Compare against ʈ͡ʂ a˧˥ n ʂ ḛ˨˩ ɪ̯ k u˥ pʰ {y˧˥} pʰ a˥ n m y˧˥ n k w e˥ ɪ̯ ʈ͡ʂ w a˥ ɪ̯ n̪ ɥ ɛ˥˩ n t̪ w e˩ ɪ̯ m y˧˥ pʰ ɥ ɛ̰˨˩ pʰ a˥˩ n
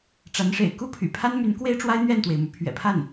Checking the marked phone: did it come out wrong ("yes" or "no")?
yes